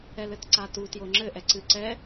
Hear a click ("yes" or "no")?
yes